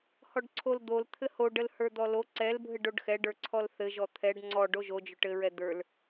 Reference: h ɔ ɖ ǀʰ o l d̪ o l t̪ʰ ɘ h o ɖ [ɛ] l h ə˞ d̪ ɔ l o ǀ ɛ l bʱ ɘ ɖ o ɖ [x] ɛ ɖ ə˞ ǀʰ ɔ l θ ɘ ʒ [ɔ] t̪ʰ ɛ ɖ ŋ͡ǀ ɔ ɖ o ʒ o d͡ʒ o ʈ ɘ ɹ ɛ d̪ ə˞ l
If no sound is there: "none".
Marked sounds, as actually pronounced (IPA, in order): ə, x, ɔ

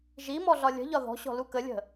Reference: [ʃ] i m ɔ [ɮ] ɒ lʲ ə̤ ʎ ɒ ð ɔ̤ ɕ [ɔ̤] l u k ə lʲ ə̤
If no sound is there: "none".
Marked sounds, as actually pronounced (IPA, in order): ʒ, ɮ, ɔ̤

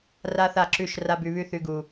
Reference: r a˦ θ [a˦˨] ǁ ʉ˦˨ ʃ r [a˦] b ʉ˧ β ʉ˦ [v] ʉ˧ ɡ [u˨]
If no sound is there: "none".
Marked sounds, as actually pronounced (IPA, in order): a˦˨, a˦, θ, u˨

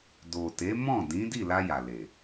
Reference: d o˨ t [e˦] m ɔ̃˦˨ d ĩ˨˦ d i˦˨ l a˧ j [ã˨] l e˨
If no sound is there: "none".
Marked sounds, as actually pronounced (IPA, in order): e˨˦, a˨

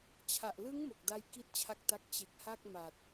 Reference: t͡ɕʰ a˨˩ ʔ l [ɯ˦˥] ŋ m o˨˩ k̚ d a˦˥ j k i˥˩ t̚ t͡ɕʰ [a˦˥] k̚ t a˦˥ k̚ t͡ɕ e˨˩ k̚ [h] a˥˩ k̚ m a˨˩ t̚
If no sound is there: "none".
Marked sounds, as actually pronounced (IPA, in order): ɯ˦˥, a˦˥, h

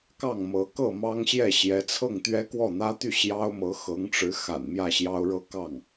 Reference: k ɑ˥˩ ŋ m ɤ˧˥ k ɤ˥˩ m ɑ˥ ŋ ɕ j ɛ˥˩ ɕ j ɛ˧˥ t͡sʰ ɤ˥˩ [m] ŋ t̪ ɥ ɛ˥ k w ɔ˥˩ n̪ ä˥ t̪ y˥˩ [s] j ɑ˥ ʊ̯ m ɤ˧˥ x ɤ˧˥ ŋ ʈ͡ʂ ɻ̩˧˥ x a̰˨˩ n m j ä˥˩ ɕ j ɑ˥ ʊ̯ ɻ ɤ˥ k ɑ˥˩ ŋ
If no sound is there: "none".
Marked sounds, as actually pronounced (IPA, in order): none, ɕ

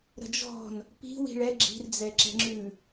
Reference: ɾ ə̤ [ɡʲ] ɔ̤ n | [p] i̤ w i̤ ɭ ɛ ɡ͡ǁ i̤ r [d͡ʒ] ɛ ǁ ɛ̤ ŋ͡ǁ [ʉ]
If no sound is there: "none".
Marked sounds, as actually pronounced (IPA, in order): d͡ʒ, p, d͡z, ʉ

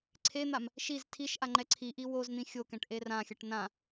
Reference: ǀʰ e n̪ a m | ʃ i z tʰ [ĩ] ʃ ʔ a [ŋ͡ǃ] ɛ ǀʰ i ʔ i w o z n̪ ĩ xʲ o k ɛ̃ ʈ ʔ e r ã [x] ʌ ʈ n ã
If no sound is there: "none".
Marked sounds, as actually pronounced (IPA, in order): i, ŋ͡ǃ, xʲ

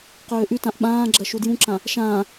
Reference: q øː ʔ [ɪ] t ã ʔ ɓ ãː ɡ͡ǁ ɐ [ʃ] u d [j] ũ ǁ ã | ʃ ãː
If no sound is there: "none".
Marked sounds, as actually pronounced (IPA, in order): y, ʃ, j

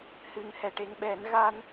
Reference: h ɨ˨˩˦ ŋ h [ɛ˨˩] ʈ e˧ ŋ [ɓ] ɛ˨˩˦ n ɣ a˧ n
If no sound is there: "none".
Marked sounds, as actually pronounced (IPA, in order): ɛ˨˩, ɓ

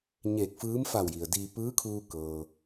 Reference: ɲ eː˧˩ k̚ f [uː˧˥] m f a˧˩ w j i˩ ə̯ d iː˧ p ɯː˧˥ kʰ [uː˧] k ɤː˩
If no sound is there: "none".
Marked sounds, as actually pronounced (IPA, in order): ɯː˧˥, uː˧

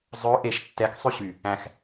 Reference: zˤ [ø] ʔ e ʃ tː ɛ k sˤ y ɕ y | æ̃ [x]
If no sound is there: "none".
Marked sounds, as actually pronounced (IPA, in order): ø, x

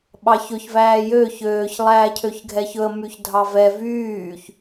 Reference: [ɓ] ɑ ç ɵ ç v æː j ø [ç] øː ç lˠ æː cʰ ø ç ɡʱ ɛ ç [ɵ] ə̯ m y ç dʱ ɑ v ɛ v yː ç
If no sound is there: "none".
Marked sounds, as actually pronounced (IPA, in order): ɓ, ç, ɵ

